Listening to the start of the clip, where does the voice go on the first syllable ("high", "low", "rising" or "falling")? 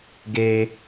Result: low